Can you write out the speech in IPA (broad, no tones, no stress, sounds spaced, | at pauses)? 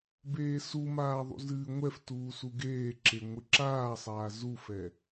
b eː s u m aː ðˤ ṵ z ɨː ŋʷ ɛ f t uː s u ɡ eː ǁ e ŋʷ ɨ ǁ aː sˤ aː z u f ɛ